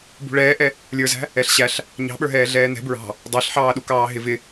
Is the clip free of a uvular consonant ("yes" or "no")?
yes